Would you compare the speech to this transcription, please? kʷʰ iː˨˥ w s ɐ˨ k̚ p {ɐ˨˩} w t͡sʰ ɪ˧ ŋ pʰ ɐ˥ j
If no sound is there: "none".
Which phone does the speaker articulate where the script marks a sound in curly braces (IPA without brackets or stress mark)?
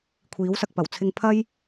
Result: ɐ˨˩